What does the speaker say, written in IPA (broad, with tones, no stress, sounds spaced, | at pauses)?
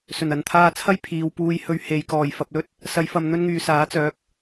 s ɵ˨˩ n ɐ˨˧ n t̪ʰ aː˧ t͡sʰ ɐ˥ j pʰ iː˨ w p uː˧ j h ɵ˧ ɥ h e˨ j k ɔː˨˩ j f ɐ˨ p̚ l ɵ˥ t̚ | s ɐ˨˧ j f ɐ˨ m n̪ ɵ˥ n ŋ yː˨ s aː˨˥ t͡s œː˨˥ k̚